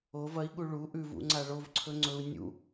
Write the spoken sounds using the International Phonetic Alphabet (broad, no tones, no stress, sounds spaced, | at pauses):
o v ɐ i̯ ɠ u ɭ u ʔ ʉ v ṵ ŋ͡ǀ a ɭ o v ǀʰ ɵ ŋ͡ǀ ɵ u̯ nʲ ṵ